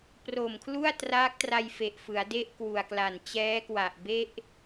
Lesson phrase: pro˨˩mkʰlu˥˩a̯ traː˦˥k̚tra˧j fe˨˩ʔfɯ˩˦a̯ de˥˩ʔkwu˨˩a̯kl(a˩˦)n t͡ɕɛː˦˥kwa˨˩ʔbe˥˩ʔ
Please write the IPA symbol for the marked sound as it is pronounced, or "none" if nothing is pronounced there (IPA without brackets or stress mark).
a˨˩